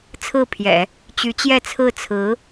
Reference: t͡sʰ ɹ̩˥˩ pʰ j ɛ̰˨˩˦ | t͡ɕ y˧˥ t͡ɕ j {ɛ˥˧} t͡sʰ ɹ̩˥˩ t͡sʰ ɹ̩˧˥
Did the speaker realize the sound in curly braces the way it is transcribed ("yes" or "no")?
yes